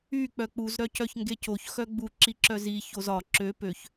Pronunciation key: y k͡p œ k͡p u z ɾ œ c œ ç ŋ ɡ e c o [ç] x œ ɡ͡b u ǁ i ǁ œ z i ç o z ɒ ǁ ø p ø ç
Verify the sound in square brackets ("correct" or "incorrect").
correct